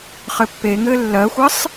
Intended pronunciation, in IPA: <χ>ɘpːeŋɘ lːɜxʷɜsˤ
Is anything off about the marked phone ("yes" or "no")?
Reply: no